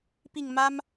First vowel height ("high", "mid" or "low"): high